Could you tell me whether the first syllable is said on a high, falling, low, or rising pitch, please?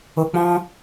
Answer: low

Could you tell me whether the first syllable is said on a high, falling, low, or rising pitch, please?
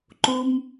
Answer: low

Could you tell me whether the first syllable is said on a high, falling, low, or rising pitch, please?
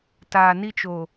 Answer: low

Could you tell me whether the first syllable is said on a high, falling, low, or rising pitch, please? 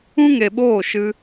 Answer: high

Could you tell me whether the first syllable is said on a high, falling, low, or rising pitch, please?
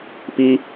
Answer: high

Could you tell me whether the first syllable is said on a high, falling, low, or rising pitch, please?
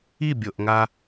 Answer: falling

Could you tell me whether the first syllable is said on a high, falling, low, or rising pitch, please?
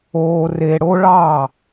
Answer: low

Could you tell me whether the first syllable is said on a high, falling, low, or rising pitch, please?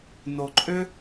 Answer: low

